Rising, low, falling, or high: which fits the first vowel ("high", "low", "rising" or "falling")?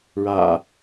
low